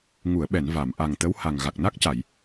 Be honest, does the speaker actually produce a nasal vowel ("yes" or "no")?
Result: no